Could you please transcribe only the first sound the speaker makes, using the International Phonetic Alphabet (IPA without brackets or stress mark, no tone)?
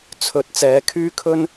t͡sʰ